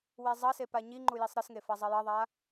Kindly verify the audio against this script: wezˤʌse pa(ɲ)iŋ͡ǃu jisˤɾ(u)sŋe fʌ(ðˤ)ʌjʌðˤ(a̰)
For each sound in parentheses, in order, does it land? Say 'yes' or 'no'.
yes, no, no, no

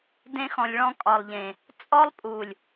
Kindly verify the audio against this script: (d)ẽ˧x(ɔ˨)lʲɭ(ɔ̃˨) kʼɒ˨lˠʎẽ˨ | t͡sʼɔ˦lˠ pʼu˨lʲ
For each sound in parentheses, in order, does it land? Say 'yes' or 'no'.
yes, no, no

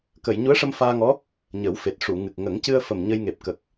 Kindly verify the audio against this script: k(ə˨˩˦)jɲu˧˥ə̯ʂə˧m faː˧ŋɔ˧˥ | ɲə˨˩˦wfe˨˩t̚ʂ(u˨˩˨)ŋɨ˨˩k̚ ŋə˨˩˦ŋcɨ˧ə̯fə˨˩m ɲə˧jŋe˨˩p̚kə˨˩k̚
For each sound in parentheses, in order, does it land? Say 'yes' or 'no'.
no, yes

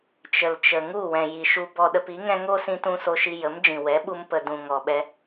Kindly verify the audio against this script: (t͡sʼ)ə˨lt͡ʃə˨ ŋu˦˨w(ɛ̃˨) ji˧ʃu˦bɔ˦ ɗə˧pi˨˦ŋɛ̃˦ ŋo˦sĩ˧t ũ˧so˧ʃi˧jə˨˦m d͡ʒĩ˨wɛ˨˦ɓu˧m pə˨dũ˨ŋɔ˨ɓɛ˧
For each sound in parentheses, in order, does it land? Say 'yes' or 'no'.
no, yes

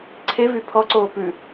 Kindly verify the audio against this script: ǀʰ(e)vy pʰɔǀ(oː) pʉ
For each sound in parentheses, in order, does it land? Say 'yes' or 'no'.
yes, yes

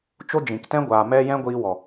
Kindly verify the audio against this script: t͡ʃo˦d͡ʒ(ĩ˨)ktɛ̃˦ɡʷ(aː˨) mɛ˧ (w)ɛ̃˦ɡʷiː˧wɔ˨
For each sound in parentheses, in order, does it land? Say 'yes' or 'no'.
yes, yes, no

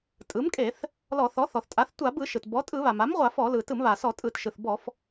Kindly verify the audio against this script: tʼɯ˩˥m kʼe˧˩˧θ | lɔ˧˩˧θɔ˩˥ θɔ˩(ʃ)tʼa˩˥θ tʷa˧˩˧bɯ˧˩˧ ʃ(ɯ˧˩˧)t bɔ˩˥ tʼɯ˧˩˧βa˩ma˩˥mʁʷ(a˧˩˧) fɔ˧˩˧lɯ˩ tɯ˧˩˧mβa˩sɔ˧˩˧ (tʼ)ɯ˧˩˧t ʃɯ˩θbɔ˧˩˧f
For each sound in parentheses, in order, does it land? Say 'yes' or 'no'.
no, no, yes, yes

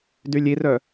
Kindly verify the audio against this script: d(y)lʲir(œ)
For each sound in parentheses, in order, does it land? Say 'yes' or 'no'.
yes, yes

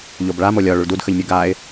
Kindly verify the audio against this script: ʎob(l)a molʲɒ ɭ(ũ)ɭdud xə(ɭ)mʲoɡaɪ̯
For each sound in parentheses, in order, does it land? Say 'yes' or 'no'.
no, no, no

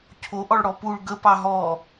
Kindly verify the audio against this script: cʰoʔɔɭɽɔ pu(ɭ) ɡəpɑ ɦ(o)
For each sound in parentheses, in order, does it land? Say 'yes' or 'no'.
yes, no

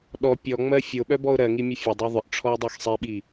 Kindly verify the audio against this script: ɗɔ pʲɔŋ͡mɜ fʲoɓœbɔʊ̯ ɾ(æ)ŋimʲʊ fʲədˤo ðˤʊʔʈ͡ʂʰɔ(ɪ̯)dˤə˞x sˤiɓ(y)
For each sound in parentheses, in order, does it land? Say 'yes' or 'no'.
no, yes, no

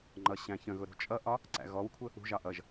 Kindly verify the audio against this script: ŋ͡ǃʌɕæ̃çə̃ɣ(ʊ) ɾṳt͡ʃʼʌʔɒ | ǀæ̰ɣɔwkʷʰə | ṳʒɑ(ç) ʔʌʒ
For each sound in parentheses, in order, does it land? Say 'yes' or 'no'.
yes, no

